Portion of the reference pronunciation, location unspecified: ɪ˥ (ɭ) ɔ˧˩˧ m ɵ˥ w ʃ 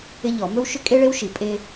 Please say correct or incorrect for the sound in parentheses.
incorrect